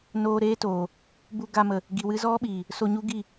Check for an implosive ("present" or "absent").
present